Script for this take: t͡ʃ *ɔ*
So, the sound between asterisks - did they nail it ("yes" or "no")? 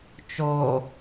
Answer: no